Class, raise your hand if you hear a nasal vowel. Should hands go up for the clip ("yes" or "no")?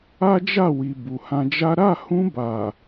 yes